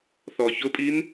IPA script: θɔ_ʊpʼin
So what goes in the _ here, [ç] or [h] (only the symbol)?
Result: ç